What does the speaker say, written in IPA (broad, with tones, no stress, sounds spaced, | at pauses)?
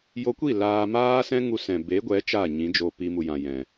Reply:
j o˧ kʷ i˦˨ l aː˧ m aː˦ s ɛ̃˦ ŋ u˧ s ɛ̃˨ b e˨˦ ɡʷ ɛ˨˦ t͡ʃ a˦˨ ɲ ĩ˨˦ d͡ʒ o˧ p i˧ m u˨ j ã˨ j ɛ̃˨